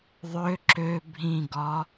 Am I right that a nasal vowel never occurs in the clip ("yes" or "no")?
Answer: no